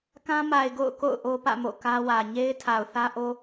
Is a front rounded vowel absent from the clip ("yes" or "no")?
yes